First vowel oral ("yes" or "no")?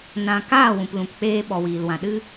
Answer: no